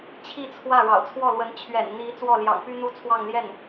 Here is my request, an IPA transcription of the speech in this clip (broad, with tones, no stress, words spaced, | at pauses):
t͡ɕʰi˥˧t͡sʰwä˥˩ ɻɑ̰˨˩ʊ̯t͡sʰwɔ˥˩lwə˧˥n t͡ɕʰɥɛ̰˨˩nn̪i˧˥ t͡swɔ˥˩ljɑ̰˨˩ŋ py˥n̪u˥t͡sʰwɑ˥˧ŋ ljɛ˥˩n